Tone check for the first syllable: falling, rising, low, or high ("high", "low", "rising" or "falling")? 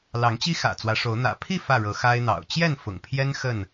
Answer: rising